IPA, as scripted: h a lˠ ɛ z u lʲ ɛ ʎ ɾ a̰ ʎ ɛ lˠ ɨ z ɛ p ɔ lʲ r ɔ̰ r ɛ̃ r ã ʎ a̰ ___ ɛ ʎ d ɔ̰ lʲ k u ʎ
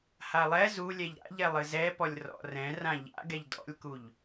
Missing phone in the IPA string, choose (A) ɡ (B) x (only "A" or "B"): A